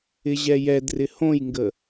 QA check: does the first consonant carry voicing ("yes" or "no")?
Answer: yes